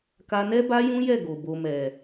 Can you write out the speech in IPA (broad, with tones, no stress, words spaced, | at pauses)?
ka˧nɛ˦ ba˦jũ˦jɛ˦˨ ɡo˨bo˨mɛ˨